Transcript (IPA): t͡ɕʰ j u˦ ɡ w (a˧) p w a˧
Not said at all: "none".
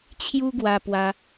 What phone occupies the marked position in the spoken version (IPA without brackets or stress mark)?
a˧